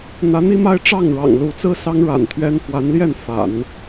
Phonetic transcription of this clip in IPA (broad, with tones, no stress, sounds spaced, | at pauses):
n̪ ä˧˥ n̪ i˥ m a˥ ɪ̯ ʈ͡ʂ ɑ˥˩ ŋ ɻ ɑ̰˨˩ ŋ l u˧˥ t͡s ɹ̩˥ s ɑ˥ ŋ ɻ a̰˨˩ n t̪ʰ ɥ ɛ˥ n f w a˧˥ n l j ɛ˥˩ n f a̰˨˩˦ n